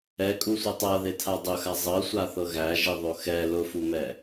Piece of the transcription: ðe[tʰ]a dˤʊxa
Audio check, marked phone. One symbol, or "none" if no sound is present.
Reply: tʰ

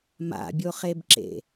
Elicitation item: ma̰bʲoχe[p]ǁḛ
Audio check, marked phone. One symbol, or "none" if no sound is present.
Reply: b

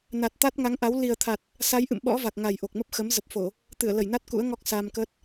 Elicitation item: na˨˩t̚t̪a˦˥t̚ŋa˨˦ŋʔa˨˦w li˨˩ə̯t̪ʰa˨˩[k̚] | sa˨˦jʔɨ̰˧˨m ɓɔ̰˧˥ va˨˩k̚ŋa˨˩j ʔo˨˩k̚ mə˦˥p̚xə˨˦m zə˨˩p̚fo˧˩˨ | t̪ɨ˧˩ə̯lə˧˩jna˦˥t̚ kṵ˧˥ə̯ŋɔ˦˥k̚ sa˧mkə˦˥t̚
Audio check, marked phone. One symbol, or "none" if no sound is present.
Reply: t̚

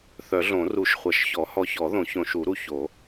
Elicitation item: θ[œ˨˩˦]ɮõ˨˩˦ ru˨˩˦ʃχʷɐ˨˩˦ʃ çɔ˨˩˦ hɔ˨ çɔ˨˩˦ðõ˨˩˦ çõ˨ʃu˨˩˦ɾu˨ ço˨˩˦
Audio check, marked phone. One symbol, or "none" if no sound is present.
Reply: œ˨˩˦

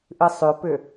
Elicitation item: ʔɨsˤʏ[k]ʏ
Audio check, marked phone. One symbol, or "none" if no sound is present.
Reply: p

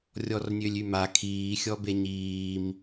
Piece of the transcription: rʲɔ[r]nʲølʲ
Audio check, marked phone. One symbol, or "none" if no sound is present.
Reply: r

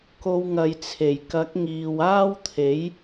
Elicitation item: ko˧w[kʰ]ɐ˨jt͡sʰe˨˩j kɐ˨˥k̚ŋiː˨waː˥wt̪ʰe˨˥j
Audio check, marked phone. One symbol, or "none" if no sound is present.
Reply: ŋ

